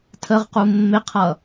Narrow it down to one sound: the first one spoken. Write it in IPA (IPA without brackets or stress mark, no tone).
tʰ